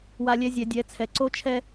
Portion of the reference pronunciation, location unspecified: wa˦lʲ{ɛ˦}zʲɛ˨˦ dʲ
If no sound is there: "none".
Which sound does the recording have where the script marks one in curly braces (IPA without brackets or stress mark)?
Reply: ɛ˦